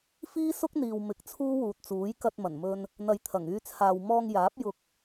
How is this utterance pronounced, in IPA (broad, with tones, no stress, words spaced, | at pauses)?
fiː˥sʊ˥k̚n̪iː˨w mɪ˨˥k̚ t͡sʰuː˥wuː˨t̚t͡suː˨˥j kɐ˧t̚mɐ˨˩nmɵ˧n | n̪ɐ˨˧jt̪ʰɐ˨˩ŋyː˧t͡sʰaː˨w mɔː˧ŋjaː˨˥p̚ jʊ˧k̚